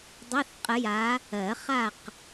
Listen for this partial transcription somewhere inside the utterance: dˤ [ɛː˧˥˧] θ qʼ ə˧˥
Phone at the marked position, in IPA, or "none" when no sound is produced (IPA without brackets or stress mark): ɛ˧˥˧